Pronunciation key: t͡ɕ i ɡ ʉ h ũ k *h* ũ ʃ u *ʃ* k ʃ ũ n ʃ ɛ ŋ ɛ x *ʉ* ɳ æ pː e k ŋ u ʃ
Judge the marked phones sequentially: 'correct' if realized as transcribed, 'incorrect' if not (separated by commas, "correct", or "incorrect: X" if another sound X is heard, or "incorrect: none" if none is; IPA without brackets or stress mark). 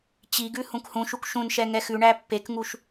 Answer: correct, incorrect: none, correct